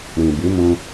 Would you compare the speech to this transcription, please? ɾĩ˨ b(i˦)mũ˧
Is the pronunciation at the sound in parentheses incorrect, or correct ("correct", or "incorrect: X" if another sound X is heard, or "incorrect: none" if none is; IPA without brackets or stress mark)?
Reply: incorrect: i˨˦